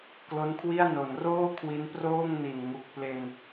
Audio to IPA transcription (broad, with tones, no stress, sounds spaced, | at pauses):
k l o˦˥ n kʰ w i˥˩ a̯ n o˩˦ n r oː˥˩ kʰ w i˦˥ n p r oː˥˩ ŋ n i˨˩ n ŋ u˨˩ k̚ p l e˧ n